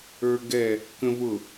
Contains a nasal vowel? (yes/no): yes